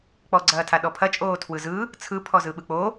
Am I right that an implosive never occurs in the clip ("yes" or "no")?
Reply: no